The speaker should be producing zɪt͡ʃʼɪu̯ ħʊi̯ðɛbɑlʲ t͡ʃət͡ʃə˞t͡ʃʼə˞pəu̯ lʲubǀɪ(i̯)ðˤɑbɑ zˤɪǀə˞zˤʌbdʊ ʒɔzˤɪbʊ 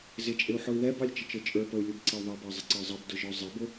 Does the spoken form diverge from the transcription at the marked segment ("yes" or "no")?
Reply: yes